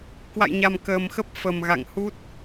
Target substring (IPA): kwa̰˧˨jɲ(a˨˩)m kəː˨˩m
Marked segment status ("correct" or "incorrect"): correct